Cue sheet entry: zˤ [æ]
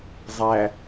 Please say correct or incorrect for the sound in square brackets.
correct